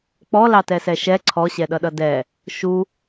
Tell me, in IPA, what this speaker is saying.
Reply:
k͡p ɔ l ɑ t ɛ s ɛ ʃ ɛ ǀʰ ɔ ɕ ɛ ɗ ʌ ɗ ʌ d ɛ | ʃ u

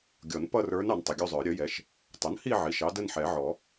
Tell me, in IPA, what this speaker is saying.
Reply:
ɡʲ ɔ˨˩˦ n p ʌ˥˧ r ə˞˧˥ n ɑ˩˥ n tˤ ʊ˩˧˩ ɡʲ u˥˧ zˤ ə˞˨˩˦ ɾʲ ə˩˥ j ɛ˩˧˩ ʃ | tˤ ʊ˩˥ n h i˥˧ ʕ i˩˧˩ ʃ ɑ˧˥ d ə˥˧ n ħ ɛ˨˩˦ ʕ ɔ˨˩˦

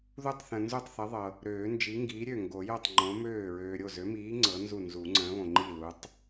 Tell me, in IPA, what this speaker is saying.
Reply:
ð u˥˩ tˤ θ ə̃˨ n z u˥˩ tˤ θ ə˨˥ ðˤ ɤ˨ | ɾ øː˨˩˦ n d͡ʒ i˨˥ ŋ ɡ iː˨˥ ɾʲ ø˥˩ ŋ ɡ o˨˩˦ j o˥˩ tˤ ŋ͡ǃ õ˨˥ m øː˥˩ ɹ øː˨ ɾʲ o˥˩ z ø˨˥ m iː˨˥ ŋ͡ǀ ɤ˨˥ n z u˥˩ n z u˨˩˦ ŋ͡ǀ ə̃ː˨˥ β õ˨ ŋ͡ǃ i˥˩ l u˨˥ tˤ

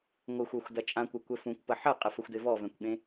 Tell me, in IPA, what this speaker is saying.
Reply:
ŋʷ ə xʷ œ xʷ d ɐ t͡ʃʼ ã kʷ œ kʷ ɛ f ũ kʷ p ɐ ħ ɐ qʼ ə f ə xʷ d e v ɔ v ɛ̃ kʷ ɠ ẽ

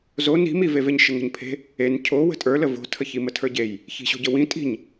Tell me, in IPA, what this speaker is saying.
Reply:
z o n i̤ m i v e v e ɲ ʃ ə ŋ ə̤ ɲ pʰ e̤ | e n cʰ o w ə̤ tʼ ə˞ l ə v o̤ tʰ ə ç i m ə tʰ ə˞ ɟ e j | ç i̤ ɕ o̤ ɟ ə w ĩ tʼ i̤ ɲ

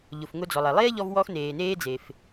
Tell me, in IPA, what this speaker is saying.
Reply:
ʎ ʊ˩ f ŋ ʊ˧ d͡z ɔ˩ lˠ ɛ˩ lˠ eː˥ ʎ ɔ˧ v w ɔ˧ x n eː˩ n eː˧ d͡z e˩ f

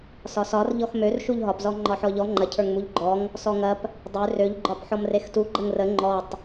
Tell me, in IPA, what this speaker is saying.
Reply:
s ɒ s ɒ r ʎ ɔ x m ø r ʃ u ʎ ɦ ɒ p z ɔ ŋ͡ǃ ɒ ħ ɔ ʎ ɔ ŋ͡ǃ ɐ cʰ ə˞ ŋ m u ʎ ɡ͡ǃ ɔ ŋ | s ɔ ŋ ɐ p | dˤ ø r ø ʎ ɡ͡ǃ ɒ p ħ ɔ m r e x t u ɡ͡ǃ ə ŋ r ə ŋ͡ǃ ɔ tˤ

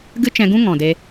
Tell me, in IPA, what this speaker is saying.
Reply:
ɡ ɨ˦ t͡ʃ ɛ̃˧ ɡ ũ˦ ŋ ɔ̃˨ d e˧

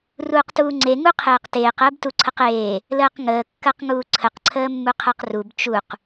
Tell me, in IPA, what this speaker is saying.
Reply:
r uː q t uː ŋ͡ǀ e ŋ u qʰ eː q t eː q əː b t u ǀʰ ə q eː | l əː q ŋ əː kː ɜ q ŋ uː ǀʰ ə q ǀʰ əː mː u qʰ ɜ q r u b t͡ʃ u q

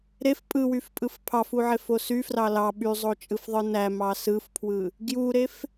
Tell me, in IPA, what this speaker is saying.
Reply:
ɾ e f pʼ ɯ w y f pʼ ɯ f pʰ ɑ f u ʕ e f o s y f r ɑ l ɑ ɓ y zˤ o t͡ʃʼ ɯ f ðˤ ɯ n æ m ɑ s ɯ f pʰ w ɯ | ɡ j u ɾ e f

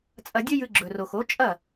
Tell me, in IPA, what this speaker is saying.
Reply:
t͡sʼ ɐ˧ dʲ ɵ˥ j ɨ˧ ɡ͡ǁ ɵ˩ r o˩ x o˩˥ t͡ʃʼ ɐ˥˩

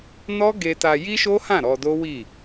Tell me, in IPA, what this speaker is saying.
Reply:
n ɔ˦ ɡ e˧ t a˧ j i˦ ʃ o˦ h ã˦˨ ɾ ɔ˧ d o˦ w i˦˨

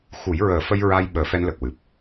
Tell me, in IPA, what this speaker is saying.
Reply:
x u˨˩˦ j ɹ əː˨˩˦ f ə˧ j ɹ a˧ j ɓ əː˨˩˦ f ɛ˧ n l ə˨˩ k̚ w ɨ˨˩ p̚

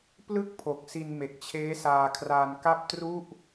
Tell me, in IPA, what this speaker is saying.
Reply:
p l ɯ˥˩ k̚ pʰ o˨˩ k̚ s i˧ n m e˨˩ k̚ t͡ɕʰ eː˦˥ s aː˧ kʰ r aː˧ n k a˥˩ p̚ t r u˥˩ ʔ

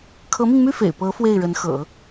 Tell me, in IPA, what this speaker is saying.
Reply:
kʰ ɤ˧˥ m i˧ ŋ m y˥˩ f ḛ˨˩ ɪ̯ p ɤ˧˥ f w e˥˩ ɪ̯ ɻ ə˧˥ n x ɤ̰˨˩˦

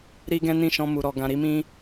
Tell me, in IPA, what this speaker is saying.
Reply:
ɾ i˦ ɡ ɛ̃˦ n ĩ˦˨ ʃ ɔ̃˧ m u˨ ɾ ɔ˨ ɡ ã˧ ɾ i˦ m ĩ˦

